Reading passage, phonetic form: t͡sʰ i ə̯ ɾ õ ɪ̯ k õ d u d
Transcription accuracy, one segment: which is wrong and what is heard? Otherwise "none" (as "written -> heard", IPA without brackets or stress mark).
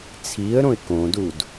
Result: none